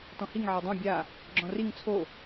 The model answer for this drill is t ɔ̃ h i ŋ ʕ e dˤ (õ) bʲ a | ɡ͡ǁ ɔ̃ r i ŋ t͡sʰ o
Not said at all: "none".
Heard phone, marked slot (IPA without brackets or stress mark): õ